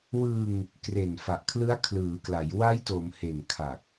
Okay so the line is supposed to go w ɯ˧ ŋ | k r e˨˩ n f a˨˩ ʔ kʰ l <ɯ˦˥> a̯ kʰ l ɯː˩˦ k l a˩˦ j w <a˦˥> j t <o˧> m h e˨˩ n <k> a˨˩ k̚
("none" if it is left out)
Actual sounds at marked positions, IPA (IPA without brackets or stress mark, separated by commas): ɯ˦˥, a˦˥, o˩˦, kʰ